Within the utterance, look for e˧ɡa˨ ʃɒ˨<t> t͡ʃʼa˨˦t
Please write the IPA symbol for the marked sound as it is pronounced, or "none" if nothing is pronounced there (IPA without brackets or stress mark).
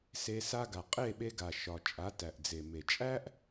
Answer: none